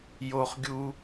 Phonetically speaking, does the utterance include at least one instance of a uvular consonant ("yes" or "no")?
yes